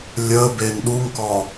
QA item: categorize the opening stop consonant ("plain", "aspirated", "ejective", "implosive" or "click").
plain